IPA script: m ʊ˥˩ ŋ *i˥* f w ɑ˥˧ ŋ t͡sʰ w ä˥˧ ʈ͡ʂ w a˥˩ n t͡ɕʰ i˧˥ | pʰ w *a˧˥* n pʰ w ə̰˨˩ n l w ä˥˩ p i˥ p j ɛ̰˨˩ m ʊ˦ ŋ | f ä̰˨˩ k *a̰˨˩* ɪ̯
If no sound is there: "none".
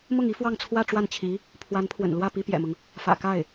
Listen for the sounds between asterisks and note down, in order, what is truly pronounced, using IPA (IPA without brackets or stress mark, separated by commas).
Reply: i˥, a˧˥, a˥˩